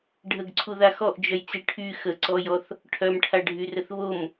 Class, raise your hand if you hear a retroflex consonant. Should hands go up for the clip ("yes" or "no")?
yes